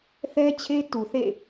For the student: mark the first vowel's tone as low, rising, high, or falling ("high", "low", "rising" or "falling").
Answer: high